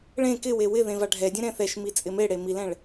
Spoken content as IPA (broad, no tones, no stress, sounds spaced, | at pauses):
ɭ ẽ k ɪ w e w ɪ ð ẽ v a ɖʱ ɛ dʲ ɛ̃ ɾ ɛ̃ θ ɛ ʃ m i t͡sʼ ɪ m e ɽ e m i l ɛ̃ ɭ